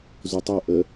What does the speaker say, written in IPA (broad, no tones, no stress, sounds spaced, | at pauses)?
z u tˤ o ʔ ə